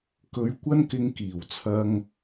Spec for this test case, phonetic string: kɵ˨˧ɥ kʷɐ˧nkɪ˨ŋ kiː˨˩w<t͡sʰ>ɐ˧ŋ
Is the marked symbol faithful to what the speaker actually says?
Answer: yes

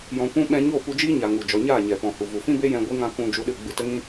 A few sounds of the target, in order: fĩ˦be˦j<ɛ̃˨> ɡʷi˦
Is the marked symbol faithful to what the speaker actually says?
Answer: no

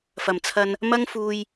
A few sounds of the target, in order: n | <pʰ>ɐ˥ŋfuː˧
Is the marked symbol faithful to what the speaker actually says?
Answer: no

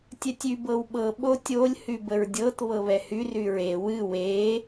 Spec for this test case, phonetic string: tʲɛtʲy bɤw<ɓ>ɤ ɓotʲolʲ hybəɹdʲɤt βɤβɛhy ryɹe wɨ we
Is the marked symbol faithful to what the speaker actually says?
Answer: yes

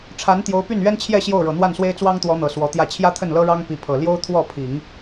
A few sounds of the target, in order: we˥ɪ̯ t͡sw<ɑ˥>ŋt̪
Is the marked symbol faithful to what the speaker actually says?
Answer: yes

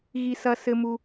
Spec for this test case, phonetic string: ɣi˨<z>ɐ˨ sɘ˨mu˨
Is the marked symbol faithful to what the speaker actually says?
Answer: no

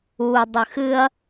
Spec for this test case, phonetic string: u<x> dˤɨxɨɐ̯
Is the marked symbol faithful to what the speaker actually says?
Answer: no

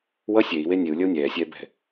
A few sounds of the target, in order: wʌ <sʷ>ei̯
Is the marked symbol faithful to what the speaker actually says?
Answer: no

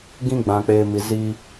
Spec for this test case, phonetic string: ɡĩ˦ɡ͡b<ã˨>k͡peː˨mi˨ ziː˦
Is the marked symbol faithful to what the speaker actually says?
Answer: yes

